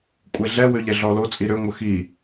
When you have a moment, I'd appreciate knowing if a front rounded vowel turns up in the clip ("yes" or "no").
yes